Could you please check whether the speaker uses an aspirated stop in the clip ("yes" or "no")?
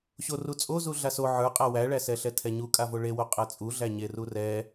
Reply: yes